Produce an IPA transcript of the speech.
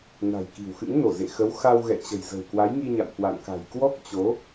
na̤˨˩jki̤˨˩wxɨ̰˧˥ŋ no˧˩ zḛ˧˨xə˨˦w xa˧w ɣɛ̰˧˨t͡ɕə̤˨˩jzə̤˨˩w kwa˨˦jŋi˧ɲa̰˧˨m kwa̰˧˨nka̤˨˩j kwɔ˦˥k̚t͡ɕo˨˦

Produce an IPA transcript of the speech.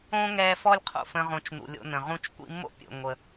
õ˦ŋɛ˧fɔ˦lʲ qʰo̰˦˨fə̃˧ ʁõ˨t͡ʃ nṵ˨lʲo̰˧nə̃˨ ʁũ˧t͡ʃkʷḭ˧mːo̰˦ pʲo̰˨ŋʷə˨

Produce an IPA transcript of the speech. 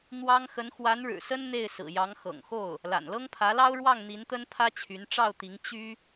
n̪wɑ˥ŋ xə˧˥nxwa˧˥nɻɻ̩˨˩sə˥n n̪e˥˩ɪ̯sɹ̩˨˩ jɑ˧˥ŋxɤ̰˨˩ŋxo˥˩ʊ̯ | la̰˨˩nlɤ˥ŋpʰä˧˥lɑ˥ʊ̯ ɻwɑ˥˩ŋn̪i˧˥nt̪ə˥npʰä˥ t͡ɕʰy˧˥n ʈ͡ʂɑ˥˩ʊ̯t̪i˧˥ŋ t͡ɕy˥

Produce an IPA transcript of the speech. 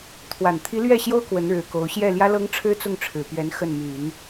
t̪ʰwa˨˩n t̪ʰi˧˥ lɥɛ˥˩ɕjo˥ʊ̯ kwə˧˥nɻɻ̩˨˩ko˧˥ʊ̯ ɕjɛ˥˩ljä˥lɤ˥ŋʈ͡ʂʰɻ̩˥ t͡sʊ˥˩ŋʈ͡ʂʰɻ̩˨˩pɥɛ˧˥n xə˥˩nmy˨˩˦n

